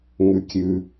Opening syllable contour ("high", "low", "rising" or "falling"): low